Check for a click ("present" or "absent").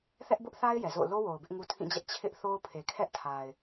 absent